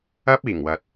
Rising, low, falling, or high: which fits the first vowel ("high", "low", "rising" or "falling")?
high